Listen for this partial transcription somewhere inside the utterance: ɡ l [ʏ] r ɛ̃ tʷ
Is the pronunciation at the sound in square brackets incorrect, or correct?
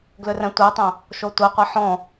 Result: correct